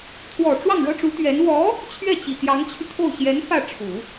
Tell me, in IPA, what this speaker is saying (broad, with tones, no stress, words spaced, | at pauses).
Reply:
t̪ʰwɔ˨˩ ʈ͡ʂwɑ˥˩ŋɻɤ˥ʈ͡ʂu˧˥t̪ɥɛ˧˥n wɔ˧˥ | t͡ɕʰɥɛ˥˩t͡ɕi˨˩ t̪jɑ˧˥ŋt͡ɕʰy˧t̪ʰo˥˩ʊ̯ ɕjɛ˧˥n fä˥˩ʈ͡ʂʰu˨˩˦